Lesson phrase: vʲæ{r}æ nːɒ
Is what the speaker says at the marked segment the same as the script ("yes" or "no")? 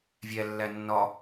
no